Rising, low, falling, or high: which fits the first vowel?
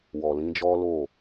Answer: low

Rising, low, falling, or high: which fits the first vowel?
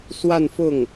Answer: falling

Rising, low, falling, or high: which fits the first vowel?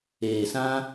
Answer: low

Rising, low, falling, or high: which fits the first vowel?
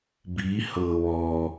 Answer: rising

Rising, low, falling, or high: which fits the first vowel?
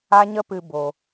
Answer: high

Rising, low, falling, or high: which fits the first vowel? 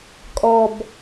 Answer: low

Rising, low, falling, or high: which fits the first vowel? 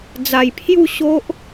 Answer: low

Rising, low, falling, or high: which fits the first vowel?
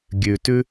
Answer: low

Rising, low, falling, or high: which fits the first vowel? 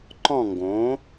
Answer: falling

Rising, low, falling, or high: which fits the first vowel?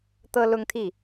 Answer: high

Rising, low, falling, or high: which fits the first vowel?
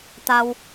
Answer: low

